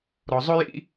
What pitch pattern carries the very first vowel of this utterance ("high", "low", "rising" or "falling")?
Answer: low